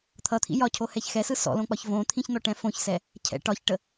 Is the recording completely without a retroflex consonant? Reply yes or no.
no